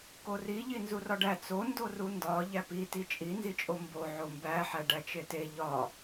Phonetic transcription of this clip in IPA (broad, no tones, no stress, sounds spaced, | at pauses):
k o r i ʎ i n z u r ɒ ɖ æ t͡s o n d o r u n d ɒ ʎ æ p i t i t͡ʃʼ i n z i t͡ʃʼ o m b o ʕ o m b æ ħ æ ɖ æ t͡ʃ e t e ʎ ɒ